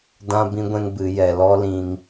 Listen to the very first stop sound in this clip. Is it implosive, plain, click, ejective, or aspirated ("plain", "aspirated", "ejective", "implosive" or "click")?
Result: plain